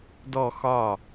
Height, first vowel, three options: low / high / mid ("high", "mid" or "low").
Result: mid